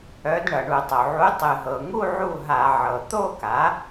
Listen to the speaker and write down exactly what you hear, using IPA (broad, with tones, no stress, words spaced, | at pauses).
œ˩˧d ɳʌ˩ɳu˧˩˧tˤo˩ ʕu˩˥ tˤɨ˩ɦɤ˩ŋu˥˧ ʕu˥˩ɦa˧˩˧ʕɤ˩ t̪o˥˧ka˩˥